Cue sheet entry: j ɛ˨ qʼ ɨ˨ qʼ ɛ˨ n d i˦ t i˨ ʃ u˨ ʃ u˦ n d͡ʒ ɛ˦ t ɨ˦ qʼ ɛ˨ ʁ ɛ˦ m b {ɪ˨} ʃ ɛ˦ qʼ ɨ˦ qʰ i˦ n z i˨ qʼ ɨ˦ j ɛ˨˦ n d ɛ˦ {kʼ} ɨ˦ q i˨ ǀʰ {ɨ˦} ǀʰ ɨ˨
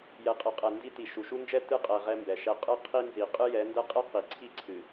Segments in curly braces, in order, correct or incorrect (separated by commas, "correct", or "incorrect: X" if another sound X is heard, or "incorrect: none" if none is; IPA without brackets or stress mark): incorrect: ɛ˨, incorrect: qʼ, incorrect: i˦